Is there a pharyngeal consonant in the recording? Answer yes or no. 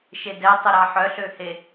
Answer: yes